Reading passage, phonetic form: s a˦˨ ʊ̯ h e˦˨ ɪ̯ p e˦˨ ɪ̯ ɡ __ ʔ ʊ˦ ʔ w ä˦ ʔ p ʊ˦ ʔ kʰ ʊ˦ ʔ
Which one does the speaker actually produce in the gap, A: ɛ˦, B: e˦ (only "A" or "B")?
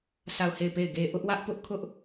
B